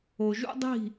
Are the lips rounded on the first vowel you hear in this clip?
yes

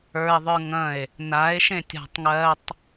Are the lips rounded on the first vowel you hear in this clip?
no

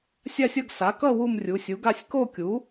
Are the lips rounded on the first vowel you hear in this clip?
no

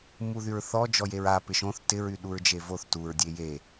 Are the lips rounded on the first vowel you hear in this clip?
yes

